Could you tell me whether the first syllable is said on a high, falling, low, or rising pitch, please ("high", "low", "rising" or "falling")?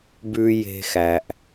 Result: low